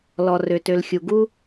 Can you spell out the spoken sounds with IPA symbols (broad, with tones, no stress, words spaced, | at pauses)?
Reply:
lɔ˨rø˨tø˨lxʲu˨ ɡu˦